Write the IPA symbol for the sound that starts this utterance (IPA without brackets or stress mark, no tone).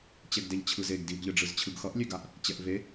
t͡ɕ